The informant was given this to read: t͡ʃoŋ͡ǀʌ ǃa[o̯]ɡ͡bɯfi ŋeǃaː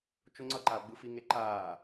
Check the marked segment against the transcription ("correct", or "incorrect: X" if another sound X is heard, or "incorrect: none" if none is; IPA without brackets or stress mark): correct